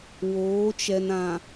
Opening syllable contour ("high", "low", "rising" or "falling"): rising